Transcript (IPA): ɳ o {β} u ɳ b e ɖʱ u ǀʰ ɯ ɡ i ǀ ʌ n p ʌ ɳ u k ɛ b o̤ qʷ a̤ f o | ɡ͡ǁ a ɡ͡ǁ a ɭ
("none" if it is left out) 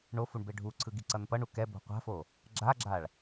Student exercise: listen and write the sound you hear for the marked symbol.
f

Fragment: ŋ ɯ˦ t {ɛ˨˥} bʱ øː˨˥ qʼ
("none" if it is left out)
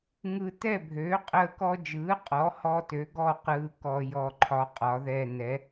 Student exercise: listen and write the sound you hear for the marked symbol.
ɛ˦˨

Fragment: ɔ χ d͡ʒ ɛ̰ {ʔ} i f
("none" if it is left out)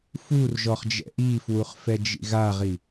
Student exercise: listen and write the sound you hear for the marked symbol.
ʔ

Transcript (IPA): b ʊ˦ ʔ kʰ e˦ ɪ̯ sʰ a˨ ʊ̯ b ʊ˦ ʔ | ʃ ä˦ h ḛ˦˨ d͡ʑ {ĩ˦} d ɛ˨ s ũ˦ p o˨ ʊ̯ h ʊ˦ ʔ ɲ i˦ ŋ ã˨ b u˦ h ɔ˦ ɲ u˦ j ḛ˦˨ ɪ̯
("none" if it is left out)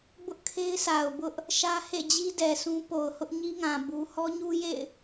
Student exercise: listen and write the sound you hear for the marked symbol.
i˦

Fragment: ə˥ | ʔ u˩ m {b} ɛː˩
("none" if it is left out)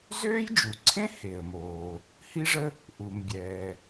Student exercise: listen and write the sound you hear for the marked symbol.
bʲ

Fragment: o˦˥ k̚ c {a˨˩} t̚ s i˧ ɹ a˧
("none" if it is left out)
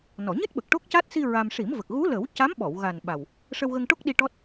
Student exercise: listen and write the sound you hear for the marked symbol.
a˦˥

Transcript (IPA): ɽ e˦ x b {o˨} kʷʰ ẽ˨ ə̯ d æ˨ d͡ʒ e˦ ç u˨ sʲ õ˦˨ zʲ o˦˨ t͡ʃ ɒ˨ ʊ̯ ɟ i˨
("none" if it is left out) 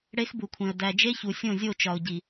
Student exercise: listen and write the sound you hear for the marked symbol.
u˨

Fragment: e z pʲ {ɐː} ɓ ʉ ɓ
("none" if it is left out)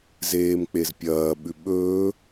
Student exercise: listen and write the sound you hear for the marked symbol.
ɐː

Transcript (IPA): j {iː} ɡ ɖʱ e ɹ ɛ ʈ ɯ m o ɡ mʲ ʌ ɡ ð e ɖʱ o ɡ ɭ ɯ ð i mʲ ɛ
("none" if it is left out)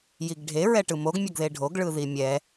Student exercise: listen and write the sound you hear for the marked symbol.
i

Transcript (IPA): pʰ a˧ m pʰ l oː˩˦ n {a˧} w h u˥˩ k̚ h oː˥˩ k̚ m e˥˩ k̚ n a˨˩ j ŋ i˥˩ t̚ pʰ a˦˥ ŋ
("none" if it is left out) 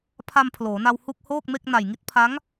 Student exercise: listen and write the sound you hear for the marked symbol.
a˧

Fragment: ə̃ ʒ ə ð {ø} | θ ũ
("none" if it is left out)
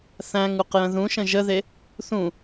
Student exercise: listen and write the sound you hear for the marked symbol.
e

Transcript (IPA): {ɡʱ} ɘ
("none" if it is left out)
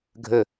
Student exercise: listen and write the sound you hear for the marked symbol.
ɡʱ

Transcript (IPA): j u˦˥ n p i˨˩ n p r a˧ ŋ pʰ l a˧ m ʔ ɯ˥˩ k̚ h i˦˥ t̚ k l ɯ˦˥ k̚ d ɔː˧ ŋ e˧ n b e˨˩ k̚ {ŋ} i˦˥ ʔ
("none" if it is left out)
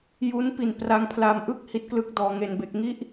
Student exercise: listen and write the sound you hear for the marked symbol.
ŋ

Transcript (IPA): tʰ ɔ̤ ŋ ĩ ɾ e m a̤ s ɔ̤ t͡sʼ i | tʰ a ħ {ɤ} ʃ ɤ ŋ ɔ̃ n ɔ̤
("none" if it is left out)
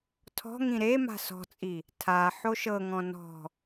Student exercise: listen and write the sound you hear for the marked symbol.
o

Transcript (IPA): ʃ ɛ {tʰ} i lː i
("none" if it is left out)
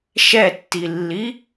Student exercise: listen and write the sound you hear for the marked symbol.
tː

